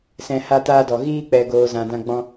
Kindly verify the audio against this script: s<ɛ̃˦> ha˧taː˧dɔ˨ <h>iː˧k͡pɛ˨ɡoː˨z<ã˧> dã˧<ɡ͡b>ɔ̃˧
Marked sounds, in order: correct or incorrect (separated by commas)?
incorrect, incorrect, incorrect, correct